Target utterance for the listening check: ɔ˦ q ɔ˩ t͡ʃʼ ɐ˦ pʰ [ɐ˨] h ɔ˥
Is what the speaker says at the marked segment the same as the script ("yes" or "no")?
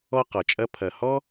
yes